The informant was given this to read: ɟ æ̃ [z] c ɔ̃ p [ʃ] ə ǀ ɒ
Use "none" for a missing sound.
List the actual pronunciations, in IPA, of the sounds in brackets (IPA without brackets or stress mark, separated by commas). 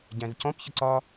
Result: z, ç